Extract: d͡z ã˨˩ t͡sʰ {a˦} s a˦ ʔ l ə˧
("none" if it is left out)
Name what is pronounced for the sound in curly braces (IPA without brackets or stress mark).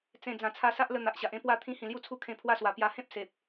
a˧